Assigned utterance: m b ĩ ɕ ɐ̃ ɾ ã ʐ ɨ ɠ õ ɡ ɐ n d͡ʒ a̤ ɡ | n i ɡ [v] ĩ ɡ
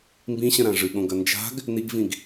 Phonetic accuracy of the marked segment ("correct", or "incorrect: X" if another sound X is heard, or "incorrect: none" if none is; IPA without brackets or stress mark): correct